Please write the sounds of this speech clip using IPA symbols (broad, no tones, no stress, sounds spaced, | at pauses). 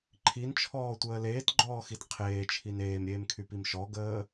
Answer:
ǃʰ i n t͡ʃʰ ɔː tʷ əː l eː t ɡ͡ǃ ɔː x i t qʰ eː t͡ʃʰ i n eː m ɾʲ eː m kʰ y p i m ʃ ɔ ɡ əː